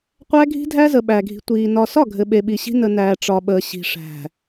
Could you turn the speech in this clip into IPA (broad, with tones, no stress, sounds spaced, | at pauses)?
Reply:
qʷ æ˦ ɡʱ i̤˦ dʱ æ˦ z ə˨ ɓ æ˨ ɡʱ i̤˨ tʷ iː˨ n ɒ˨ s ɒ˦˨ ɡʱ ɘ˨ ɓ e˨ ɓ i˨ ɕ i̤˦ n ə˨ n æː˨ ʈ͡ʂ ɒ˨ ɓ əː˨ ɕ i̤˨ ʂ æ̤˨